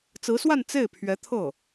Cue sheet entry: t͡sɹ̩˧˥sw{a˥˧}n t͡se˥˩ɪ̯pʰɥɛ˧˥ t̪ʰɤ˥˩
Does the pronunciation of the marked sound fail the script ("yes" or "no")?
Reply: no